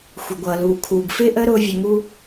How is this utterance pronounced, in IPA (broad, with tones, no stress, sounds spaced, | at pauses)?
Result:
xʷ ɪ˩ ɡʷ ʌː˩ l uː˩ kʰ uː˩ ɡ f ɪː˥ ʔ əː˥ ɾ ʊː˧ vʲ ʊ˩ ŋ u˧